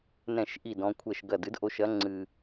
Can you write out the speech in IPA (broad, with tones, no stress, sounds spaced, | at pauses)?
n ɛ̃˥˩ ʃ ʔ i˥˩ d ɔ̃˨˦ kʷʰ ɛ˥˩ ʃ ɡ ɐ˥˩ d ɨ˨˦ d ʔ o˨˦ ʃ ɐ˨˦ ŋ͡ǀ ɨ˨˩